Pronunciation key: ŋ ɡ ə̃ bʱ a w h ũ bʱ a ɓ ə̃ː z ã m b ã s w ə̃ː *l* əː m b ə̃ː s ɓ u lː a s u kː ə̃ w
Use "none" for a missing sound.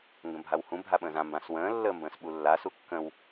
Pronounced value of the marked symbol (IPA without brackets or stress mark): lː